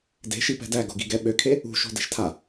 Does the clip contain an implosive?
yes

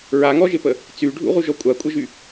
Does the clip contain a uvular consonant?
yes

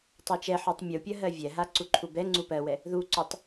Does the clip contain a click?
yes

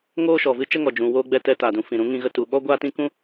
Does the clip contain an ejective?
no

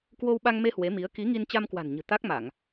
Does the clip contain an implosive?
yes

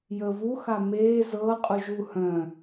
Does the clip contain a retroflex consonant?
no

